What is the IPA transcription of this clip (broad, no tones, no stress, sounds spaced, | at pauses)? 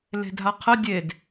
l e̤ dʱ a qʰ ə dʲ e d